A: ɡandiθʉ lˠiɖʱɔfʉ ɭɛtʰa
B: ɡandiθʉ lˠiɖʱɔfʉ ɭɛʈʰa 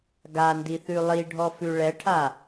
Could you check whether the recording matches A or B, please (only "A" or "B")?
B